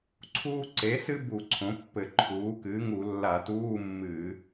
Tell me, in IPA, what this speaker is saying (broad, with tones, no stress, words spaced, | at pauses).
ǀʰuː˥ ǀe˩˥sɨ˥bu˧˩˧ ǀʰõ˩˥pːɘ˧˩˧ǃʰuː˩˥ kɨː˩˥ŋu˧˩˧ lːa˧˩˧tuː˧˥˧ mːɨː˧˩˧